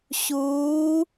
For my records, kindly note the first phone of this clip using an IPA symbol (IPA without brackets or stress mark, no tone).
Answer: ɕ